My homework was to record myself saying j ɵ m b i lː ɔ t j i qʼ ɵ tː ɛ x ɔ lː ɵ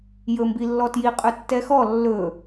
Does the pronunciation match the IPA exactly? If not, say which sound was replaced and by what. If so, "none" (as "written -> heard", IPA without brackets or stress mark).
none